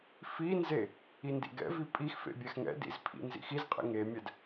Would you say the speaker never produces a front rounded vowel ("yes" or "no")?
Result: yes